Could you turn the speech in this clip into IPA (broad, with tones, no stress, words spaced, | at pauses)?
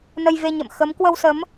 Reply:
nə˧jve˧ɲə̰˧˨m xə˨˦m kwə˧wsə˨˦m